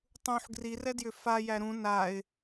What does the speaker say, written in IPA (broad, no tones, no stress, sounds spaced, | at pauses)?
tˤ ũ ħ ɡ r i r ɛ d j ʏ f a j æ ɾ ũ n a ɪ̯